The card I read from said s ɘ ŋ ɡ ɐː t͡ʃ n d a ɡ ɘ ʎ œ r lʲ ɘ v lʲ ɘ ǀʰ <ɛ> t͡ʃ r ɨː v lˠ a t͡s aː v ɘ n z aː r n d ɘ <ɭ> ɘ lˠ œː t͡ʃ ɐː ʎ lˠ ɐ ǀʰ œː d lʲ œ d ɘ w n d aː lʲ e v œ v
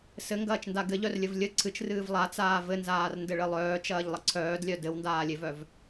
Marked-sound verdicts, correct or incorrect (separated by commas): incorrect, correct